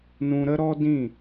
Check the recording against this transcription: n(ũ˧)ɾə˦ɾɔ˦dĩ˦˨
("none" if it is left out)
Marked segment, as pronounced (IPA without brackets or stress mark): ũ˧